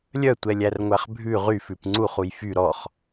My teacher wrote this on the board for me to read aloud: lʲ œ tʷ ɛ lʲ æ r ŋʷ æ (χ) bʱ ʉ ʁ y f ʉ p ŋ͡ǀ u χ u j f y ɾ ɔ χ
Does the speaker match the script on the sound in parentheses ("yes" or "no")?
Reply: yes